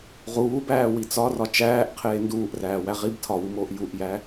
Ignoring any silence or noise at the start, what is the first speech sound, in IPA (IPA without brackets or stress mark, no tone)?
ʁ